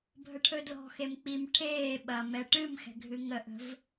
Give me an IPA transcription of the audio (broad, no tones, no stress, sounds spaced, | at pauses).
bʱ ə ʈʰ ɵ d l ɔ̤ x e m k͡p i m ʈʰ eː ɓ ɐ m ɛ ʈ ɨ m x ɛ̤ ɡʱ ɨ ŋ ə ʔ ə̤ v